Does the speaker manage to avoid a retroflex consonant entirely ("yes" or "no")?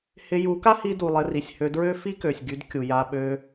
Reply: yes